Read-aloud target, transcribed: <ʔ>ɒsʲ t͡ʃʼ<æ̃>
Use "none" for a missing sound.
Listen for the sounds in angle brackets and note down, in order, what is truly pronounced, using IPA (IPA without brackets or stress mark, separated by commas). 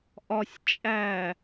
ʔ, æ